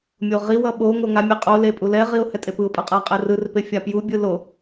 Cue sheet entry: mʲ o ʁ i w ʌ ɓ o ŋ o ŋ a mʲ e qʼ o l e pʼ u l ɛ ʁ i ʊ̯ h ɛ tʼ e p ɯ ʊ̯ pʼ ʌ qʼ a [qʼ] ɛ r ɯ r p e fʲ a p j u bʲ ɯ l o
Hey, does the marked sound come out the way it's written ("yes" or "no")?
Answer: yes